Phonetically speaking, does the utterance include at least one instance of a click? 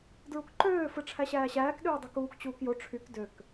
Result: yes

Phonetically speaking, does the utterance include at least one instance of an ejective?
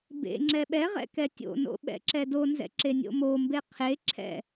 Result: no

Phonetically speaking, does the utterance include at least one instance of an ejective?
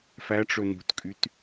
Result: yes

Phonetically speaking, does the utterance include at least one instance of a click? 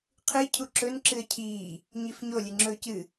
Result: yes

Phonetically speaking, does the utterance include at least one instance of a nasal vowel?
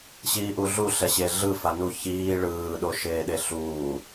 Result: no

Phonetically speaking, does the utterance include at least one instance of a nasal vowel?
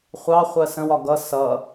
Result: yes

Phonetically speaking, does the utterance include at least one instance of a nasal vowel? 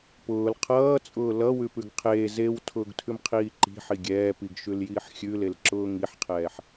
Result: no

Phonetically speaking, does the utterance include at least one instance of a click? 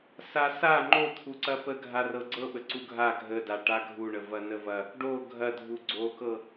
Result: yes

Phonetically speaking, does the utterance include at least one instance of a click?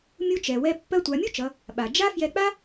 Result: no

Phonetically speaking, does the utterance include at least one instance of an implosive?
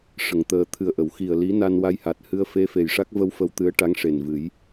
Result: no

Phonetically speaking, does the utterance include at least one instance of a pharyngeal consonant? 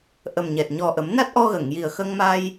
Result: no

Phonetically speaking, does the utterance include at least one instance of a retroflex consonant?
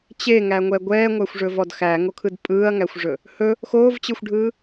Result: yes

